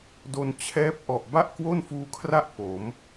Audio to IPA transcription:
do˧n t͡ɕʰɛː˦˥p̚ʔɔ˨˩ʔ ba˥˩ʔkwo˥˩nfuː˧kʰra˥˩ʔ po˩˦m

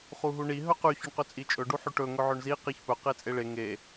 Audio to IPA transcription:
χuɦuɳi ɦɵqʉ çɵɳqɵt͡sʼit͡ʃʼɵ ɖuħʉʈɵ ŋɵʕɵɳzi qiçpɵ qet͡sʼeɭe ŋe

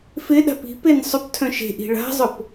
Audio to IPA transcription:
fɪɗa̤p i̤pen sˤʊptʰœ̃ ʃe̤ʔi̤ ɭa̤zˤʊp

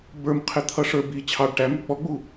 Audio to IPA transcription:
bə˞mqʰɪt̪ʰʌ ʂə˞bi t͡ɕʰɑɖ ʈæmɾə k͡pɔɡ͡bu

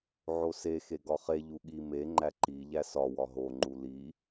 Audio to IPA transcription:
ʕose xeɡɒχe ʎuɠi me ŋ͡ǃæǃi ʎæsɒ wɒɦo ŋ͡ǃuli

